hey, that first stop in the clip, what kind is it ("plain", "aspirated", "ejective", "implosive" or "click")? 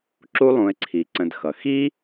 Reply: click